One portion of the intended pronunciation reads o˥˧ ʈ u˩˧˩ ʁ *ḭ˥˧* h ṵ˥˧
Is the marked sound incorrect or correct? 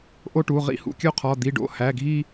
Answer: correct